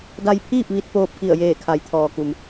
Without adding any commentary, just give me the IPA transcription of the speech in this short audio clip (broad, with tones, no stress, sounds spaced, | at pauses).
d a˧ j pʰ iː˥˨ p̚ ʋ i˧ t̚ p oː˧ p̚ k i˧˩ ə̯ j eː˧˩ kʰ a˩˧ j t̪ʰ ɔː˩ k u˩ m